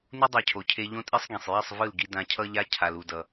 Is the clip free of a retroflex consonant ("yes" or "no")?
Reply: yes